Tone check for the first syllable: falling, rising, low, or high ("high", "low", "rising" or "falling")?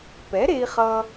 rising